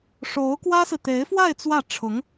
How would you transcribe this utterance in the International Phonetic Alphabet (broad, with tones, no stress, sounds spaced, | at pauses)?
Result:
ʂ o˧˥ ʊ̯ k w ä˥ s ɹ̩˨ t̪ e˧˥ ɪ̯ f w a˥˧ ɪ̯ t͡s w ä˥˩ ʈ͡ʂʰ ʊ˧˥ ŋ